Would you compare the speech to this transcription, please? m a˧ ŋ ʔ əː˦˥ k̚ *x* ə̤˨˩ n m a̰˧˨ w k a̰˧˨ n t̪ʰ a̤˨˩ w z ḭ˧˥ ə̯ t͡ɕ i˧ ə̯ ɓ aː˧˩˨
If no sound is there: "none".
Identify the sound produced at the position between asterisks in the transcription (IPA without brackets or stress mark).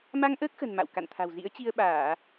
x